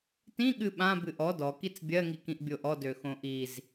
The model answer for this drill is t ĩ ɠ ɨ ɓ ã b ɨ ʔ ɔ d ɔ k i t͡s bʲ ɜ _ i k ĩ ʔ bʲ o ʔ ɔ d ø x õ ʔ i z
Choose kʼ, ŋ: ŋ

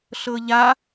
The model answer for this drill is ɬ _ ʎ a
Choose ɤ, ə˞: ɤ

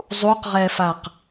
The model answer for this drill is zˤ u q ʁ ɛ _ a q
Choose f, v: f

